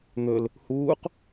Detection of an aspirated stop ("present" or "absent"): absent